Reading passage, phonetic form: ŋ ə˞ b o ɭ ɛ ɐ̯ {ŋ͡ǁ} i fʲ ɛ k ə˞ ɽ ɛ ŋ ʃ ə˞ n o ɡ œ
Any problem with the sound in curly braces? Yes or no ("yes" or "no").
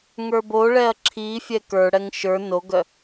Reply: yes